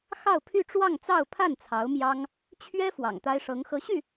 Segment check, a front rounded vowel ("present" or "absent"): present